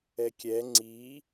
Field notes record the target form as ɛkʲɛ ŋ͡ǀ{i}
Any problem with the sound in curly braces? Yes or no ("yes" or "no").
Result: no